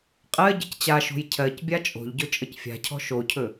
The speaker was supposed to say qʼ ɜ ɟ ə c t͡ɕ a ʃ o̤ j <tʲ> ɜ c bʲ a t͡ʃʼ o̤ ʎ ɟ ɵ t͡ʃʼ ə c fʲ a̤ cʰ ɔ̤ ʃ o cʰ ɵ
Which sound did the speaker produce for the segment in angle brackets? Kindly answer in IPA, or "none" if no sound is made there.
cʰ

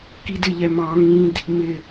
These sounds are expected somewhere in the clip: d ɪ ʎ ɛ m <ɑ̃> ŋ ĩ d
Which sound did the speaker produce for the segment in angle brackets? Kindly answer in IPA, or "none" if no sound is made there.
ɑ̃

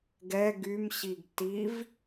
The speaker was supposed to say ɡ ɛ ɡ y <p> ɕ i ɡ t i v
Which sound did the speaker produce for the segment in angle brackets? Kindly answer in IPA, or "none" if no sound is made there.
m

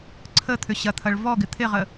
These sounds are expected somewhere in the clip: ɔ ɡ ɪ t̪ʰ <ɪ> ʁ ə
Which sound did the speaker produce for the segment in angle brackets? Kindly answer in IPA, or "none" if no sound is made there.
ɪ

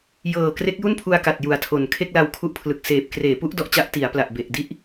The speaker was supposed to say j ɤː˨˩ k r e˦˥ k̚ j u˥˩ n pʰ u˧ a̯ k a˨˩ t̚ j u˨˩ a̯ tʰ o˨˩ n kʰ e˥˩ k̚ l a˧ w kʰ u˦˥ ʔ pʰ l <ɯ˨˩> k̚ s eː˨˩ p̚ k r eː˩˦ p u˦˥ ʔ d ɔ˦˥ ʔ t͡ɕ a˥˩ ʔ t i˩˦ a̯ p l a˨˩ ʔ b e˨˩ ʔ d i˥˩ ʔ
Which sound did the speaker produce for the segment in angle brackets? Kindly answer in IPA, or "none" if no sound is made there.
ɯ˨˩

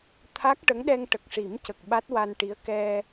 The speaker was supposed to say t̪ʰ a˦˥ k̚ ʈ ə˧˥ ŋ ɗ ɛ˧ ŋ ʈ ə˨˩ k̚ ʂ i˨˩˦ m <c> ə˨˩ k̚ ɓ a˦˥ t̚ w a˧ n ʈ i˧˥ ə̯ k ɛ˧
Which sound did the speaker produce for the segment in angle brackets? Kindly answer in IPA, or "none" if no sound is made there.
c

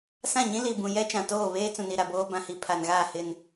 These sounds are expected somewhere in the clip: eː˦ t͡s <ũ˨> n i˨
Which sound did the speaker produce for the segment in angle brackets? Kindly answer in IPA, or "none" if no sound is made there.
ũ˨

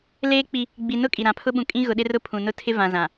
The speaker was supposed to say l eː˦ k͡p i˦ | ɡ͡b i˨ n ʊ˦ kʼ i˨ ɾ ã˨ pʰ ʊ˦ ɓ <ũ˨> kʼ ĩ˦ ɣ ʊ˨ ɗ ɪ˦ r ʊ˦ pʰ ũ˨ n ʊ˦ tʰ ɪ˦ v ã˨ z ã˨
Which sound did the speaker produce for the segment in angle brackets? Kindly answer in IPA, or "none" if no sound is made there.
ũ˨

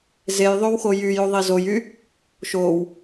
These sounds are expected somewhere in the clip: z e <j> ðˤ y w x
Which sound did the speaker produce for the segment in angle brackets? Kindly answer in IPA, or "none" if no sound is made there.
j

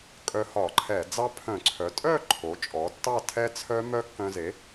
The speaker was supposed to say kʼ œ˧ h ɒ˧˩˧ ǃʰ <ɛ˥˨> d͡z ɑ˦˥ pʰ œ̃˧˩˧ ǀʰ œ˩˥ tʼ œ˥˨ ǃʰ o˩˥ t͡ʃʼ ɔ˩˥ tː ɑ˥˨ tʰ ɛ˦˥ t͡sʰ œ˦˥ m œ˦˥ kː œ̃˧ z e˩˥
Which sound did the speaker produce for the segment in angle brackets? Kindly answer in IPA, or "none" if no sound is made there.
ɛ˧˩˧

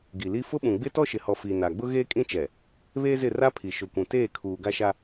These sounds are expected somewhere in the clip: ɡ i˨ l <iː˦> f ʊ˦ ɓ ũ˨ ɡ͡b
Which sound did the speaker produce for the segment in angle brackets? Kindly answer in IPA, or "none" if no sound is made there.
i˦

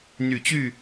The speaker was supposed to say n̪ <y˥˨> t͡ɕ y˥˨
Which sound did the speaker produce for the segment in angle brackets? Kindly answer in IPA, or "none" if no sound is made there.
y˨˩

